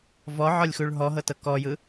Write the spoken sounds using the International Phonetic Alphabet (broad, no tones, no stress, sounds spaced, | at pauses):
v ɔ ʕ ɔ lʲ x u ɭ ɦ ɔ ɦ ɤ t ɤ k ɔ j ɯ